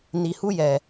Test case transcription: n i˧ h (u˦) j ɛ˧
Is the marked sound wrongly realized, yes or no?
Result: no